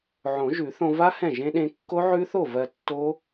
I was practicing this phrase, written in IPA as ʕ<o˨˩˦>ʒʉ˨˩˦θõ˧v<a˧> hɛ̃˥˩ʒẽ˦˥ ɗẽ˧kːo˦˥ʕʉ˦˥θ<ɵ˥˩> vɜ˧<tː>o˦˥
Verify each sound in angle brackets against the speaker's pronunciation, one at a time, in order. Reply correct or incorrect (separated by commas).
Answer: incorrect, incorrect, incorrect, correct